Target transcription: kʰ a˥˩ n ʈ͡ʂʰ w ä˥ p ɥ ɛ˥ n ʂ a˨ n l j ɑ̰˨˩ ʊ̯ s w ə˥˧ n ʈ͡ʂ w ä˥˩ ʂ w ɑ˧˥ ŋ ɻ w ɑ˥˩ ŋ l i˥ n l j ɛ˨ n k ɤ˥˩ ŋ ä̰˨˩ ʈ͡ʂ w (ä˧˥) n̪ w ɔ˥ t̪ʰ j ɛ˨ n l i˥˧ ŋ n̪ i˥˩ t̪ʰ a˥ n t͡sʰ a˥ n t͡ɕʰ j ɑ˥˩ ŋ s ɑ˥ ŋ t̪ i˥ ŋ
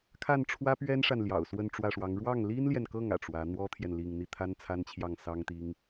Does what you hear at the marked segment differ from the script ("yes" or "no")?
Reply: no